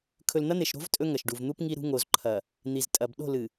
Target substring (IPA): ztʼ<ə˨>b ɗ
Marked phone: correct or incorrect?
incorrect